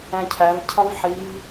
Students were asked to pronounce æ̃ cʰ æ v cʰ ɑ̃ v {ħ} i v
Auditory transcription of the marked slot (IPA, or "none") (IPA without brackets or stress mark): ħ